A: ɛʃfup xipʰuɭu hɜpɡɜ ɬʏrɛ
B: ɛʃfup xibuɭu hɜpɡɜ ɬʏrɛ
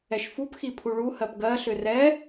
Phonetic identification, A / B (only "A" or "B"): A